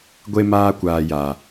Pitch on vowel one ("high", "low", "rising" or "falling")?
high